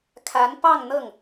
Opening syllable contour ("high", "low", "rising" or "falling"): rising